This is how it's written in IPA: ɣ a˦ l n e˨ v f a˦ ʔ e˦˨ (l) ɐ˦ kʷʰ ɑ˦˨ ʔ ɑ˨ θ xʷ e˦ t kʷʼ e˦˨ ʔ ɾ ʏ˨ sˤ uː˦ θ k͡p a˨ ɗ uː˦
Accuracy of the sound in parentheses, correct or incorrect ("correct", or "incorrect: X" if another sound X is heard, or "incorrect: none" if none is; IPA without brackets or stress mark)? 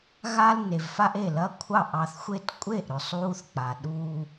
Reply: correct